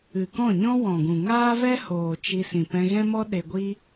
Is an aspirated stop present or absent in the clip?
absent